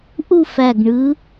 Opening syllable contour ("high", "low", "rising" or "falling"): falling